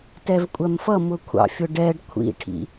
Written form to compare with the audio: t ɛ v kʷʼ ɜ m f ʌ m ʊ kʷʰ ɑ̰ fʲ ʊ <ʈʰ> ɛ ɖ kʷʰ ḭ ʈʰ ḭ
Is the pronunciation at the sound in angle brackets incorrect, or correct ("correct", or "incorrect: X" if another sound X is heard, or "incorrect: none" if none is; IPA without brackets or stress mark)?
incorrect: ɖ